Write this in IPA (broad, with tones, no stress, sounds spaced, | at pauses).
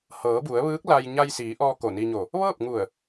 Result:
h ɤː˩˧ b u˩˧ ə̯ ʋ ɯː˧˥ k̚ l a˧ j ɲ a˧ j s iː˩˧ ʔ ɔː˧ k o˧˩ n i˧ ɲ o˧˩ | ʋ ɤː˥˨ p̚ ŋ u˧˩ ə̯